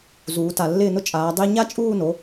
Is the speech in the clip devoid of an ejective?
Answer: no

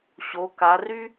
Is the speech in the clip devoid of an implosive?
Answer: yes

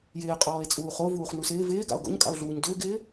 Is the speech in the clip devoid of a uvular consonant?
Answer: no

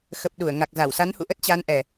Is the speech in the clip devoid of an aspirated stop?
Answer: yes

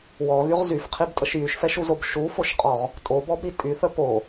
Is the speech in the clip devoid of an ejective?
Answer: no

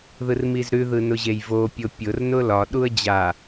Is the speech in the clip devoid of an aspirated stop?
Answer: yes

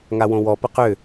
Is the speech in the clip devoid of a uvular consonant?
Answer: no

